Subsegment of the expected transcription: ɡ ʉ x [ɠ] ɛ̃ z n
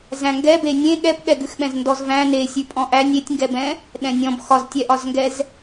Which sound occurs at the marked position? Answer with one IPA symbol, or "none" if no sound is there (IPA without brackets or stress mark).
ɓ